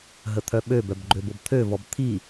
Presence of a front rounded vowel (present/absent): present